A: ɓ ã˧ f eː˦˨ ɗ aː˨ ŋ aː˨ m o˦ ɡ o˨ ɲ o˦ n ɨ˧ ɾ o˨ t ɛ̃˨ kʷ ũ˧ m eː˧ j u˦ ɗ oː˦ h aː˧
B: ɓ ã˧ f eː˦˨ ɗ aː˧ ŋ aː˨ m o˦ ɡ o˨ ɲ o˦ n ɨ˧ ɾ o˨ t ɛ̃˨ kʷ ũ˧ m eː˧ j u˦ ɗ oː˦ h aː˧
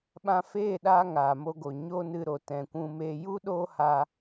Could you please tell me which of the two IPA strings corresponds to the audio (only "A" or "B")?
B